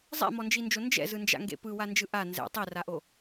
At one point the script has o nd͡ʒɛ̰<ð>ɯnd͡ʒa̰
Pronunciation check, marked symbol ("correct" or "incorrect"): incorrect